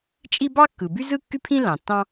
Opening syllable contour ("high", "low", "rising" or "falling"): high